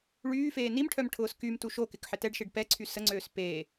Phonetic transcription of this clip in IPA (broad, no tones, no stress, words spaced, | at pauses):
ɭyːfeː nimʈʰœmʈʰʊːs kymtu ʃokɪkħɪ tɛɖʃiɖ pɛǀʰy səŋ͡ǀøːs peː